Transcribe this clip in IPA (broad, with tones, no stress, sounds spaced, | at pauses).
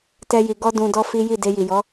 t ɛ˦ j i˧ ɡ ɔ˦ d ũ˧ d ɔ˦ f i˦ j i˦˨ d e˧ j i˨ j ɔ˨˦